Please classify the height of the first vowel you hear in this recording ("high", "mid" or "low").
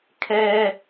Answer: mid